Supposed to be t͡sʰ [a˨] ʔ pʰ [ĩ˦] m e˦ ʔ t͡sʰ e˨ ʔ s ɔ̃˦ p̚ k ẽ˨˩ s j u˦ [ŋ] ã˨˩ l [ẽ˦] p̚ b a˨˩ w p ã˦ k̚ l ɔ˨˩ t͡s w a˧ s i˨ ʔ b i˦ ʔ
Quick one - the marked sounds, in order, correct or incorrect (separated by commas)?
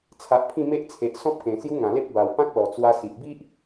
correct, incorrect, correct, incorrect